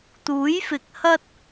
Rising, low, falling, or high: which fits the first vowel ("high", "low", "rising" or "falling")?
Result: rising